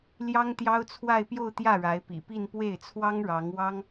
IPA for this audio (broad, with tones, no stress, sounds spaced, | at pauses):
l j ɑ˥ ŋ t̪ j ɑ˥ ʊ̯ t͡sʰ w a˥˧ ɪ̯ p j o˥˧ ʊ̯ t̪ j ä˥˩ ɻ a˧˥ ɪ̯ p ḭ˨˩ p i˥˧ n p w e˥˩ ɪ̯ t͡sʰ w ɑ˥ ŋ ɻ ɑ˧˥ ŋ w ɑ˥ ŋ